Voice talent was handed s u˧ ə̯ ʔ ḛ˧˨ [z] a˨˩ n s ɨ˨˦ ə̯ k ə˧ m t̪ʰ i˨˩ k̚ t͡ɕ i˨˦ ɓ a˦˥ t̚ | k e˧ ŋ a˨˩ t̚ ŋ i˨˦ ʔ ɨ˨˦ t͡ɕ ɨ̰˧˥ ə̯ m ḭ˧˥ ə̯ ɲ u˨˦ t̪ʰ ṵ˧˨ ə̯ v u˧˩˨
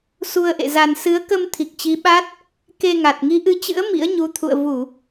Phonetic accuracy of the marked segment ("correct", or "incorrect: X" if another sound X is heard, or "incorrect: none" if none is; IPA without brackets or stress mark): correct